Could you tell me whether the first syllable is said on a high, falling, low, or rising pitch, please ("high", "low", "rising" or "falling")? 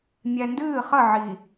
low